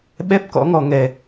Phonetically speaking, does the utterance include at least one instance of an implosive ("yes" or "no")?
yes